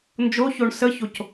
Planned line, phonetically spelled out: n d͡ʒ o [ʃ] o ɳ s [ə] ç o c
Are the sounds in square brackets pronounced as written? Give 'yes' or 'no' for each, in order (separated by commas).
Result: no, yes